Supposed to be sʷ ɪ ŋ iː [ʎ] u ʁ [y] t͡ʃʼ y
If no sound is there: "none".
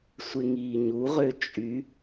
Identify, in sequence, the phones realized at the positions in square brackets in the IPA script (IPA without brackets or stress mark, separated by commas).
ɲ, ø